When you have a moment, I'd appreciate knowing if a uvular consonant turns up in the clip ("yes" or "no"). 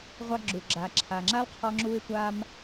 yes